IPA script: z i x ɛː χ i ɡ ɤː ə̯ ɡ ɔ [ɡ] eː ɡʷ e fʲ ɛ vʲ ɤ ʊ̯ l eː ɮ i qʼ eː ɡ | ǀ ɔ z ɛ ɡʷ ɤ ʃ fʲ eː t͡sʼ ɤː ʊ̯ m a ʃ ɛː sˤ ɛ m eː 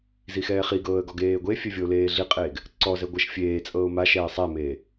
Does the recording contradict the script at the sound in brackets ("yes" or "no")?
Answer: no